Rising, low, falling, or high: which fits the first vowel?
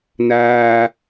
high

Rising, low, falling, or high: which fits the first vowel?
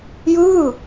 falling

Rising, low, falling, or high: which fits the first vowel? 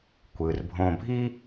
low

